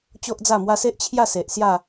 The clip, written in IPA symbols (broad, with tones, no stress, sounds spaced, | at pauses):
t͡ɕ o˦ ʔ d͡z a˥˧ m w a˦ s e˦ ʔ t͡ɕʰ j a˥˧ s e˨ ʔ s j a˥˧